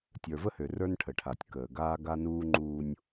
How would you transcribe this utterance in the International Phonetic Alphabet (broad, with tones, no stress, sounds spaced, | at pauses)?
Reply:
tʲ ə˞˨ v ə˦ h ø˨ r ə˞˦ n ʈʰ ə˨ ʈʰ a˨ tʲ k əː˨ ɡ aː˦ ɡ a˦ n uː˦ ŋ͡ǃ uː˦ nʲ